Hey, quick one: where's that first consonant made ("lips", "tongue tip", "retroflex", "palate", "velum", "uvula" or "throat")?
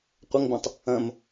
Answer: uvula